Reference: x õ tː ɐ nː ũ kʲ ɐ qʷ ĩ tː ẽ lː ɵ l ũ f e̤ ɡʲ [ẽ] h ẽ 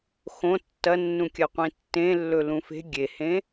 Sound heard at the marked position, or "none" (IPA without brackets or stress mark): e